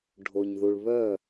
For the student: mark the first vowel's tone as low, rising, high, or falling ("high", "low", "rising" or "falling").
low